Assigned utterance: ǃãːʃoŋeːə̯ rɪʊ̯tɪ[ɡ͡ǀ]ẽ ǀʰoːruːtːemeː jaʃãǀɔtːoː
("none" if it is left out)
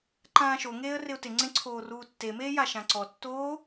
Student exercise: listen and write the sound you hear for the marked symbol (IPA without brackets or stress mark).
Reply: ŋ͡ǀ